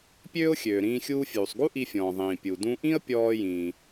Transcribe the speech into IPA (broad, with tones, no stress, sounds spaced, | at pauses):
pʲ øː˥ ʊ̯ xʲ øː˩ ɾ ĩː˧ xʲ uː˧ fʲ uː˩ sˤ ɡ u˥ ʔ i˧ fʲ ɔ̃ː˩ ðˤ ĩː˩ pʲ u˩ d ũ˧ ʔ ĩ˥ ə̯ pʲ ɔː˥ j ĩː˩